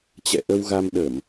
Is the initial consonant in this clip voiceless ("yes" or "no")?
yes